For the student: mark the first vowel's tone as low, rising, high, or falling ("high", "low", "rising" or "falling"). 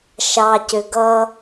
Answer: low